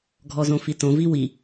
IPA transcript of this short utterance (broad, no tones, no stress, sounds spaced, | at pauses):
ɡʱ ɔ z õ f i t õ v i w i